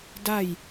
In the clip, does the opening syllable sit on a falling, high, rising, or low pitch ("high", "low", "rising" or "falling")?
falling